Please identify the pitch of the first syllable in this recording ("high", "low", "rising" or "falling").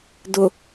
low